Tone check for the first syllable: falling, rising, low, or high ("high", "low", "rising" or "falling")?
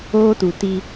high